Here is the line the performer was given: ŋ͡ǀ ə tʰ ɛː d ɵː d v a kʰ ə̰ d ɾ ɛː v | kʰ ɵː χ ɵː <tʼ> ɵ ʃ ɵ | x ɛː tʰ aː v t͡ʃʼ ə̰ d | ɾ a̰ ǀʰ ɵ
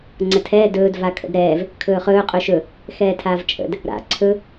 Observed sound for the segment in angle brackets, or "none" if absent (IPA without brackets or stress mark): qʼ